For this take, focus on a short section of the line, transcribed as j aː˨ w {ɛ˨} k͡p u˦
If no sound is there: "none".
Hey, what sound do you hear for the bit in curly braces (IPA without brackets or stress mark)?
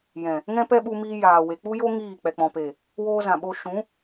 e˨